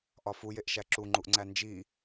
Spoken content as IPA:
ʔ ɒ f u j e ʔ ʃ æ ǁ u ŋ͡ǃ u ʔ ŋ͡ǀ æ n d͡ʒ i

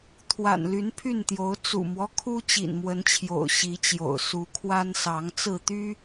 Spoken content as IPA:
t̪ʰ w a̰˨˩ n l y˨˦ n pʰ y˥˨ n t̪ j o˨˦ ʊ̯ t͡s ṵ˨˩ m w ɔ˦ kʰ u˦ t͡ɕ ḭ˨˩ n m w ə˨˦ n t͡ɕʰ j o̰˨˩ ʊ̯ ɕ i˨˦ t͡ɕ j o̰˨˩ ʊ̯ s u˨˦ kʰ w a˦ n s ɑ˨˦ ŋ t͡s ɹ̩˥˨ t̪ y˦

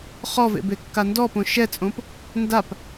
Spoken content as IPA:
χ ɔ v ḛ b e kː a n d ɔ p õ ʃ ɛ t͡sʼ õ p | n d a p

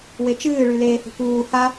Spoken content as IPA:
w e t͡ʃ ɨː ɭ y l eː h ṳ k uː h a

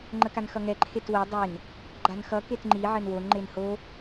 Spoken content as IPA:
ŋ͡ǃ ə k a n x ʌ ŋ ɛ ǃʰ e t w ɘ dˤ e n | ɡ͡ǃ a n x ʌ k e t ŋ͡ǃ i ʕ ɘ n w o n ŋ͡ǃ e n h o

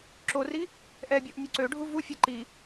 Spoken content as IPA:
ǁ o r i | ʔ ɛ bʲ ɔ ʔ nʲ u ǀ ø ɖʱ u v u fʲ ə ǃ i

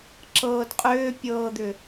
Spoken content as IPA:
ǁ ɤː d qʼ ʏː pʲ ɤː d̪ ʏ

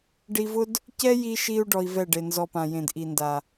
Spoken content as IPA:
ɖ i˧ v ʊ˦ d | c ɛ˦ j i˧ ʃ i˧ u̯ ɖ ɔ˧ i̯ v ɛ˦˨ ɖ e˨ n z ɔ˧ p ã˨ j ẽ˨ d ʔ i˨ n d a˨

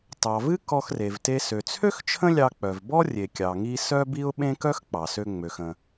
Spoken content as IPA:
t ɑ˩ v ɨ˥ k ɔ˧ x r e˩ v t e˧ s ø˩ t͡sʰ ø˥ x t͡ʃʰ ə̃˥ lʲ ɑ˧ k͡p œ˩ v b ɔ˥ rʲ e˩ kʲ ɑ˩ ŋ i˧ s œ˥ b i˥ ʊ̯ ɓ ẽ˥ k œ˥ x k͡p ɑ˩ s ø˧ ŋ͡m ø˩ x ə̃˩

